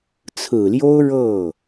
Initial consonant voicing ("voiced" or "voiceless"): voiceless